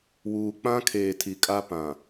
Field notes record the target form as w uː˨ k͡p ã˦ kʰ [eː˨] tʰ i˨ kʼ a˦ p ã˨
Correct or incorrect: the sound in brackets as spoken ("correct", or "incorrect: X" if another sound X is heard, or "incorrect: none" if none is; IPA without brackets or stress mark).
correct